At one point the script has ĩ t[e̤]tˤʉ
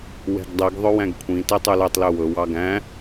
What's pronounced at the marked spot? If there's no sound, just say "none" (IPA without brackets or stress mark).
e